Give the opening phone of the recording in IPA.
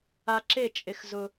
a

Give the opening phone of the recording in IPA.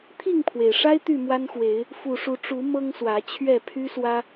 t̪ʰ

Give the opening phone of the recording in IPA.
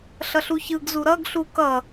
ɬ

